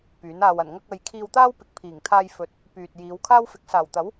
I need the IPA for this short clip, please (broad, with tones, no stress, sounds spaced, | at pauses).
p yː˨˥ n aː˧ w ɐ˨˩ n ŋ ɐ˧ k̚ ɐ˨ j kʰ iː˧ w t̪ aː˥ w p ɪ˨ k̚ pʰ iː˨˩ ŋ t̪ʰ aː˧ j f ɵ˨˥ t̚ | p yː˨ t̚ j iː˨˧ w kʰ aː˥ w f ɪ˨˥ k̚ s aː˨˩ w t̪ ɐ˨˥ w